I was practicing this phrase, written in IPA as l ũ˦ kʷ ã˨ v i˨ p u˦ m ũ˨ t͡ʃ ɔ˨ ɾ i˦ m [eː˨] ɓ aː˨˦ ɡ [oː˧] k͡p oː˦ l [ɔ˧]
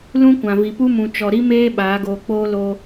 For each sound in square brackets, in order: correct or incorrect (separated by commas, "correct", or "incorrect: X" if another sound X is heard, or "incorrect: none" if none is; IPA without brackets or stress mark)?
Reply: incorrect: eː˦, correct, incorrect: o˧